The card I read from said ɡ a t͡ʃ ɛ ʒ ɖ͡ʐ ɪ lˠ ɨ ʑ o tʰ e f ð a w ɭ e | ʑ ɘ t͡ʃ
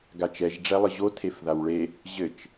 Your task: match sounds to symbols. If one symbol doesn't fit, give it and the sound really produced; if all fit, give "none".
ɪ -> ɛ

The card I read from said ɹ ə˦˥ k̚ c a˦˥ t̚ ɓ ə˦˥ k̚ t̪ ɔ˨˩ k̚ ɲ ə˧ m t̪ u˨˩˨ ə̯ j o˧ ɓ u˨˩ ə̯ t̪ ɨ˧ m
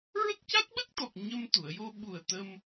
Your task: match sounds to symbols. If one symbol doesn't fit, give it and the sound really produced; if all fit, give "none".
ɨ˧ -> ə˧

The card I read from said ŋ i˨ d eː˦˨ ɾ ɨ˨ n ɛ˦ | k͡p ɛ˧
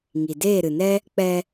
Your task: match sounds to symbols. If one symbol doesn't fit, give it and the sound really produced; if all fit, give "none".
none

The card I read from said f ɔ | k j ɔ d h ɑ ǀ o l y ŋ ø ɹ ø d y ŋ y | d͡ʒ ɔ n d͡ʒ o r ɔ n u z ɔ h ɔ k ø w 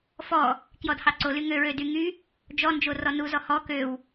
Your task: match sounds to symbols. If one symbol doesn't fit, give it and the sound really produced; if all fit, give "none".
none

